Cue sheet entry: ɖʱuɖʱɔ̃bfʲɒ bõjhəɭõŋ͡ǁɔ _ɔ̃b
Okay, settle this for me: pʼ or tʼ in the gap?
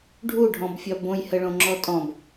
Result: tʼ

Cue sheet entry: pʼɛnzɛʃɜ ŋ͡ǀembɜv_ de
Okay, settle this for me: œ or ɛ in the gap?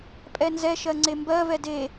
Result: ɛ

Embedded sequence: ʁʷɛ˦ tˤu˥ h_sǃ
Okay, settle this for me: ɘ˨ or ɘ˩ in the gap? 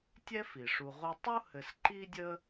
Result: ɘ˨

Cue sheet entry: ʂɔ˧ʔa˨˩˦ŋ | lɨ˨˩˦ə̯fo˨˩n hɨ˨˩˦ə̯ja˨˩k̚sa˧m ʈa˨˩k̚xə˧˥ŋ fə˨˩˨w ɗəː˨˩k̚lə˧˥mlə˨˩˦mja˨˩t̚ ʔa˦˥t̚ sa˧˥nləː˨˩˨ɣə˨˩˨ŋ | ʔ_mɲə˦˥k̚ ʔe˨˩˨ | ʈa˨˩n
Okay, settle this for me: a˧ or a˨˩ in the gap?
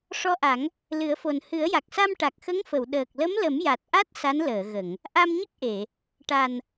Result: a˧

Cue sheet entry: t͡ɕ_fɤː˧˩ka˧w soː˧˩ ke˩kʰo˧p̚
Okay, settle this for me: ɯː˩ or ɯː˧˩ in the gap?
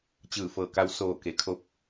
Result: ɯː˧˩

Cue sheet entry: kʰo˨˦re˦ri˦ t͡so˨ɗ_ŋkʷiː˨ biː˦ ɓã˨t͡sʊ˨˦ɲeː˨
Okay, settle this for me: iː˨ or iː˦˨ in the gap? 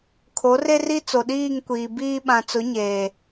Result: iː˦˨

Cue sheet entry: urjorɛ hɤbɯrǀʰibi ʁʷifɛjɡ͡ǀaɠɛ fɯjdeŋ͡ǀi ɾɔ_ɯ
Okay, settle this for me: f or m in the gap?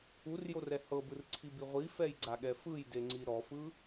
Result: f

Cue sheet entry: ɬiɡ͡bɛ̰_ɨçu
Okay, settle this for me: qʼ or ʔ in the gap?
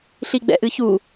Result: ʔ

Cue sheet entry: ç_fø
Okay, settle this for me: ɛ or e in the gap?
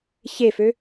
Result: e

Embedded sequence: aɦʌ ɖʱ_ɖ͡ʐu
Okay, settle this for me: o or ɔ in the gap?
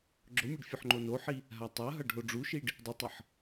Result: o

